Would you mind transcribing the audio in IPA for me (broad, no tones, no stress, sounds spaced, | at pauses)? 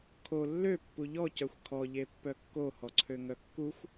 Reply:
kʰ o lː ø pː u ʎ ɔ c œ xʷ kʰ ɔ ʎ e pː œ kː o h ɔ ǀʰ ø ŋ œ kː u xʷ